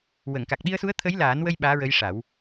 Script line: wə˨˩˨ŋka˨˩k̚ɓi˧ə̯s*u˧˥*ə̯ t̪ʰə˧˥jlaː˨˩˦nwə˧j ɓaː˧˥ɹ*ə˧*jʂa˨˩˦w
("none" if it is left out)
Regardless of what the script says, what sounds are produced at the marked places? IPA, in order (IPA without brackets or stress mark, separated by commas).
u˧˥, ə˧˥